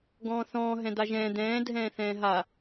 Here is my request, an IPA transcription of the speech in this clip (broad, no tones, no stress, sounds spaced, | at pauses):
ɡ ɔ̃ː θ ɔ̃ː ɦ ɛ̃ d̪ a ʒ ɛ̃ː d̪ ɛ̃ː dʱ ɛ̃ː θ ɛ̃ː ɦ a